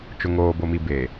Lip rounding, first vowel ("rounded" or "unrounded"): rounded